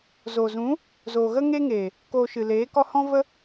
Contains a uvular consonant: no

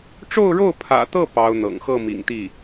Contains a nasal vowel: no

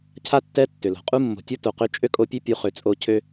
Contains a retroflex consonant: no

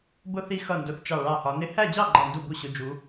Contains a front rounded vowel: no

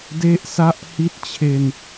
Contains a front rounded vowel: no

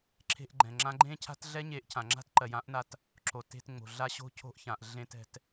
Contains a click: yes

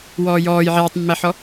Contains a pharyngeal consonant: yes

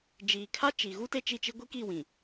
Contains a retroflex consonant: no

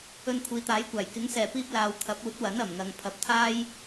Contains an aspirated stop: yes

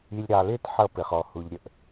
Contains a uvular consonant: yes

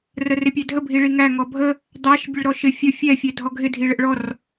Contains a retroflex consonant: yes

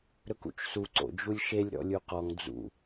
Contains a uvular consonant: yes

